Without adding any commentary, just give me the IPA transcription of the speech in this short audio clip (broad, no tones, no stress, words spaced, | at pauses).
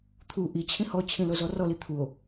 t̪ʰu ʔit͡ɕʰĩ hɔt͡ɕʰĩlozɔ rɔli t̪ʰuo̯